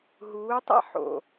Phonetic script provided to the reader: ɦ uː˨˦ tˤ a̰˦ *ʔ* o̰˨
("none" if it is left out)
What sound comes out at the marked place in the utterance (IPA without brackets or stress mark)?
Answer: ħ